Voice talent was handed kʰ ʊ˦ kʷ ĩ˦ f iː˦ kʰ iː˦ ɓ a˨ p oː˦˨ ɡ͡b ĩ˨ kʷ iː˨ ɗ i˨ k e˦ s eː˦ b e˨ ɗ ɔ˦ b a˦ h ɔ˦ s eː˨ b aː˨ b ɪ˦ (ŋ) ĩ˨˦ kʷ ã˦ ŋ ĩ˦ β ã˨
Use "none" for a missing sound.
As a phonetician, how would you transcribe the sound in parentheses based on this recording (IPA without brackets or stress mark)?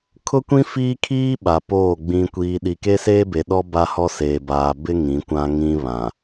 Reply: ŋ